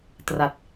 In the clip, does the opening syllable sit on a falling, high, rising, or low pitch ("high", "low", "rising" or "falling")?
low